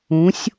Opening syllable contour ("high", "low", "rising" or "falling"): rising